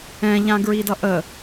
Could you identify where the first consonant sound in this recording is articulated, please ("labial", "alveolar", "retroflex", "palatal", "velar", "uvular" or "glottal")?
palatal